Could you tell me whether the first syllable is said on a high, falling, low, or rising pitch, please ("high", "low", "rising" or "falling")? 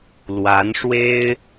rising